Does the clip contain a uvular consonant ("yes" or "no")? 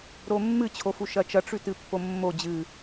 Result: no